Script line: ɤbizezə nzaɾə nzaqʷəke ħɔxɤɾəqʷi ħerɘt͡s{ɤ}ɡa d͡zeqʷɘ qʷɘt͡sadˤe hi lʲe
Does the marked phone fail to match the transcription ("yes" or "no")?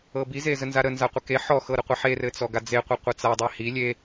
yes